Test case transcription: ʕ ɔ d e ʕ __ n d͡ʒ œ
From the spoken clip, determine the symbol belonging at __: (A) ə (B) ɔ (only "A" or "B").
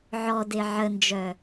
A